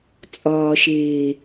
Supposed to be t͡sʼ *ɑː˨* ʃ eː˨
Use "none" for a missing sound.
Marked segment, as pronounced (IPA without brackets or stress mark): ɒː˨